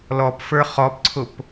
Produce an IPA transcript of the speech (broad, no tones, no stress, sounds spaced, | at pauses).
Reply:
l ɔ p f ə˞ χ ɔ p ǀʰ ʊ p